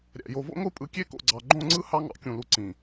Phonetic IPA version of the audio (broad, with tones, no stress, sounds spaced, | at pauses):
ɾʲ æ̰˨ j o˨ v o̰˦ ŋʷ ɯ˦ pʼ ɯ˨˦ kʲ e˦ k o̰˨ ɡ͡ǀ ɑ˨ ɡ͡ǃ õ˦˨ ŋ͡ǀ ɯ˦ h ɑ˦ ŋ ɑ̰˨ kʲ ũ˨ l u˨ ǀ ĩ˨